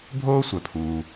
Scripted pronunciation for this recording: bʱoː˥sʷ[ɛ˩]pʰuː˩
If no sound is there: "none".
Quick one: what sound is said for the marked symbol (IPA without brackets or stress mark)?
œ˩